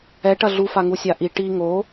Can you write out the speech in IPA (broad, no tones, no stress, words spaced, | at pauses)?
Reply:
ɛʈɐ ɮufaŋu sʲaʔi ʈi ŋo